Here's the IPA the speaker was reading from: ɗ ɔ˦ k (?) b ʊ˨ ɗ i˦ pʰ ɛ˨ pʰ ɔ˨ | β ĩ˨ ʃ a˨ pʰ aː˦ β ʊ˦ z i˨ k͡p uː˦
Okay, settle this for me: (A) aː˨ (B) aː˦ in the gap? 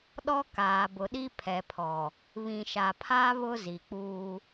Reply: A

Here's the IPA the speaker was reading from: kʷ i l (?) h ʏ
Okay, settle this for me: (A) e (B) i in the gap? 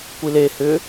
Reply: A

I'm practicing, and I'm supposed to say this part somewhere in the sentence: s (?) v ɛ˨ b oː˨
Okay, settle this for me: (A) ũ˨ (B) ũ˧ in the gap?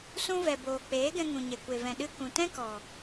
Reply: B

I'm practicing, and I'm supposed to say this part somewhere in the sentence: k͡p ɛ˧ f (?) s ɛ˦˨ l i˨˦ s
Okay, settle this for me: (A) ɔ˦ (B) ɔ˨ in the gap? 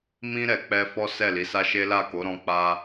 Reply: A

